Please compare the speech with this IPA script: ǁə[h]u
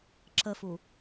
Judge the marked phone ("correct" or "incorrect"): incorrect